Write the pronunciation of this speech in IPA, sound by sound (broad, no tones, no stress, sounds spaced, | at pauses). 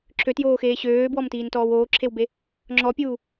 ǁʰ ø t j oː x eː ɕ øː b w ɔ m t iː n t ɔː w oː ǁʰ e w b e | ŋ͡ǁ ɔ pʲ uː